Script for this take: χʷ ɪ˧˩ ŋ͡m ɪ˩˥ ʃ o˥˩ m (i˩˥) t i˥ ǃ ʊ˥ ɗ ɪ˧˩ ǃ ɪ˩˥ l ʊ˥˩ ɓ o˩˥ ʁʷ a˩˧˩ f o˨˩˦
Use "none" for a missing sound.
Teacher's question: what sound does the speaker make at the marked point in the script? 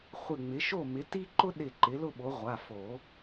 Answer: ɪ˩˥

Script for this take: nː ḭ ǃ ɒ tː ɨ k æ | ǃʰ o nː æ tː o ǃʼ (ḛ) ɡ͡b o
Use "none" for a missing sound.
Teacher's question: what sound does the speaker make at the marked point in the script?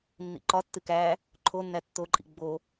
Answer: ḭ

